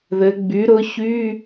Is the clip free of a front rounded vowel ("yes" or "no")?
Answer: no